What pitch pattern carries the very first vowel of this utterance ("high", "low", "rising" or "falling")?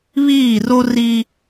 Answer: falling